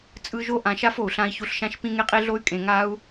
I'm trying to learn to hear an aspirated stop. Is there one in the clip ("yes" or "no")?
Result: no